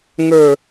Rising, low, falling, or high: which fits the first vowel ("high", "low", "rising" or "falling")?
low